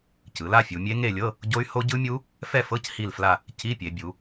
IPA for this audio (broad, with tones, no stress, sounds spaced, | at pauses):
c ɯ˩˧ l a˥˧ fʲ u˩˧ mʲ e˦˥ ŋ e˥˧ lʲ ɤ˧˥˧ | ɟ o˦˥ y̯ h o˦˥ ɟ ɯ˦˥ mʲ u˦˥ | f ɛ˥˧ f ɤ˧˥˧ c h i˥˧ l f l a˥˧ | c i˧˥˧ pʲ e˩˧ bʲ u˩˧